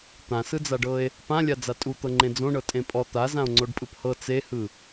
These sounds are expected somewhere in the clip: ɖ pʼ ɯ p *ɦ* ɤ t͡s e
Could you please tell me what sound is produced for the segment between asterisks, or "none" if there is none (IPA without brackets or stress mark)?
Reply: h